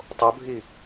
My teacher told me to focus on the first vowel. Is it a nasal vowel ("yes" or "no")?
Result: no